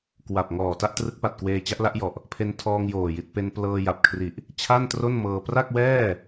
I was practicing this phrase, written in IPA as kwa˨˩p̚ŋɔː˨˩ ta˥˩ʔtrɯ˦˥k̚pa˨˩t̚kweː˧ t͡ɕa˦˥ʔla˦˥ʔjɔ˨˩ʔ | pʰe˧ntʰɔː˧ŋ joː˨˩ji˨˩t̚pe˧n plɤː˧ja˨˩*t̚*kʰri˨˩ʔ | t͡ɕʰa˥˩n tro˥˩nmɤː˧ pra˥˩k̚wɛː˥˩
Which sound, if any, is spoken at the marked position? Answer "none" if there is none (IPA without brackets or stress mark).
p̚